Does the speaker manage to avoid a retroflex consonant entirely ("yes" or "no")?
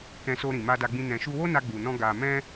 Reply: yes